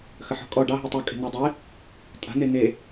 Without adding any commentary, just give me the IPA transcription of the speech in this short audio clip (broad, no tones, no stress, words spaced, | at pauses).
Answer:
xəħɔ̤kʼɔ ɖɑɦi tˤukʼe̤ nedˤe | tʼa̤ne ne